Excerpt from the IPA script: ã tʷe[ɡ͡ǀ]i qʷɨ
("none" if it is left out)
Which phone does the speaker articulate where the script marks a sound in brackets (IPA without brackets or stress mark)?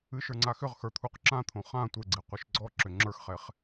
ɡ͡ǀ